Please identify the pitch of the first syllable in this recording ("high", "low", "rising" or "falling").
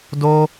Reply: high